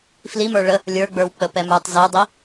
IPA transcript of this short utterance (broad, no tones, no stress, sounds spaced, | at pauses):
f l i m ə˞ ɭ ə | lʲ ə˞ ɡ͡b ə˞ w k͡p ə p ɛ m ə˞ tˤ z ɘ u̯ dˤ i